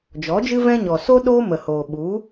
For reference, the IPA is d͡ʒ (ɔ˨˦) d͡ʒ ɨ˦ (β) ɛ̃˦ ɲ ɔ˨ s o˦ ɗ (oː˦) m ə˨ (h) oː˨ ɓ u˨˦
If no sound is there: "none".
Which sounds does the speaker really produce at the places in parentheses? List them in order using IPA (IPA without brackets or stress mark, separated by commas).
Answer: ɔ˨˦, v, oː˦, h